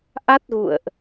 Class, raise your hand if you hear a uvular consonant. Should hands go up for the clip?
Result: no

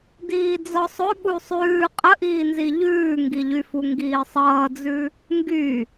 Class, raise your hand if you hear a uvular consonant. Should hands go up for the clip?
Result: yes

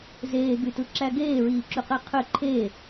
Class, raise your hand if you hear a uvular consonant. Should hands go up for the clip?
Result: yes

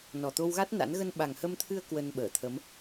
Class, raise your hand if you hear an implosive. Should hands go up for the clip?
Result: yes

